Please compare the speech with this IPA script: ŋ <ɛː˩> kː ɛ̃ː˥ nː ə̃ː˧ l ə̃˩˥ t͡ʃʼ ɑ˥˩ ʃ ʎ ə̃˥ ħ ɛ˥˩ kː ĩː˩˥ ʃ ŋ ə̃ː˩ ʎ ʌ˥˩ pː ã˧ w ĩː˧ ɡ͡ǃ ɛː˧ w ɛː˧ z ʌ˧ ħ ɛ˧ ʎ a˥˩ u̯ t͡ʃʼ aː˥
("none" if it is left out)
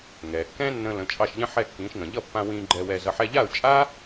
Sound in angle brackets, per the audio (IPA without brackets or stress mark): ɛː˩